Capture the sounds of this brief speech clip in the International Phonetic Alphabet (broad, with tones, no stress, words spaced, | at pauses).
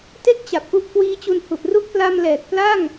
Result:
te˦˥k̚t͡ɕa˨˩p̚ ʔu˦˥ʔkwiː˦˥t͡ɕu˧n hu˨˩ʔru˦˥k̚pla˧mlɛː˨˩k̚ pla˥˩ŋ